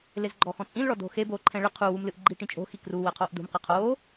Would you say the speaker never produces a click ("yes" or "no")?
no